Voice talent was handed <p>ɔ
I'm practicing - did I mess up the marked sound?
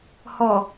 yes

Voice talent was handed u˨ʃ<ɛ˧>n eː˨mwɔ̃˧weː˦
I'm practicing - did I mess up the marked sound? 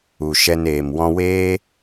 no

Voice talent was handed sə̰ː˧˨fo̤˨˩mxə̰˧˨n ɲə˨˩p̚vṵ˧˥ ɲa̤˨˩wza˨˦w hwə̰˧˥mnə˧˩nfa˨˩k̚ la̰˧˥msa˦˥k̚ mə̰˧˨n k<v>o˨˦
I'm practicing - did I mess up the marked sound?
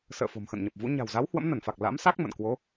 yes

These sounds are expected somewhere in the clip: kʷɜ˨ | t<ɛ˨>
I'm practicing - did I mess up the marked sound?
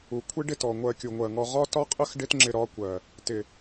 yes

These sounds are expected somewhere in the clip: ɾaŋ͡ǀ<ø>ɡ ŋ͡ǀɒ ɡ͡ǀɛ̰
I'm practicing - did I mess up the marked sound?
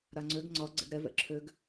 no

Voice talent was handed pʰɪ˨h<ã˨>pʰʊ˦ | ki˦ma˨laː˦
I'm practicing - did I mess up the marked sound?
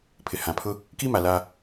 no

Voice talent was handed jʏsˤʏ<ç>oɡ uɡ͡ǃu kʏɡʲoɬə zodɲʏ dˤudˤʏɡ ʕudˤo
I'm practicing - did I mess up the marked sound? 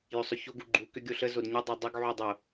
no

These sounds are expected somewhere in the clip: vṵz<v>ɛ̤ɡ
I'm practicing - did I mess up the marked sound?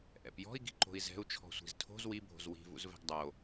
no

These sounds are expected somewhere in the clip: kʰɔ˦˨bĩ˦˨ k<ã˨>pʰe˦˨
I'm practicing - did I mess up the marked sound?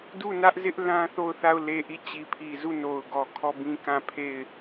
yes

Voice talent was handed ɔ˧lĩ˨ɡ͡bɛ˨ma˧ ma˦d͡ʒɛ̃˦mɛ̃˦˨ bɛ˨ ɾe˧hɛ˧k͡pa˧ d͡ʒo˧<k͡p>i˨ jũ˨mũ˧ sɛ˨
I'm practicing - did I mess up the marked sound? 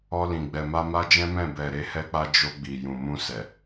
yes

